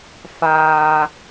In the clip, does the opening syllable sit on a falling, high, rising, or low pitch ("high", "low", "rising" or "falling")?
low